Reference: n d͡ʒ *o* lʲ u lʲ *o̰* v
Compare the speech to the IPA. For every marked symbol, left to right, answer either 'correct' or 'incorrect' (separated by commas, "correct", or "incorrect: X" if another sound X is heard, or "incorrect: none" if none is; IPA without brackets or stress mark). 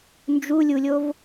incorrect: u, incorrect: o